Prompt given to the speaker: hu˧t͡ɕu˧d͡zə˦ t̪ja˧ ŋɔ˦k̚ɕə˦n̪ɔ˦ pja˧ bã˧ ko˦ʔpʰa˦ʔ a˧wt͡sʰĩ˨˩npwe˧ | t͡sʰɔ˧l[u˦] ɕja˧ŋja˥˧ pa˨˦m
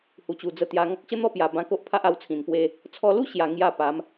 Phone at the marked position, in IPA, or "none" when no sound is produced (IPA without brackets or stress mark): u˦